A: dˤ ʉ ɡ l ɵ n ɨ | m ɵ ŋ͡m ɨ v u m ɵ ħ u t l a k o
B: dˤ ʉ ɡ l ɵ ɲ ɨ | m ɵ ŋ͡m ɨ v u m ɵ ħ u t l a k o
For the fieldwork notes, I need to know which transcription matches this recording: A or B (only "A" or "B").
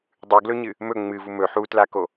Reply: B